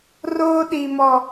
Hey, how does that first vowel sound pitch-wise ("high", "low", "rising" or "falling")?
high